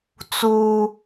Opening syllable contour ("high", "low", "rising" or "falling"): high